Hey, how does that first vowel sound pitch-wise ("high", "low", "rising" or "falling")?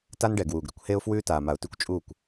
high